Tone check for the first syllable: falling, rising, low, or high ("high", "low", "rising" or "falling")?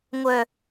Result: low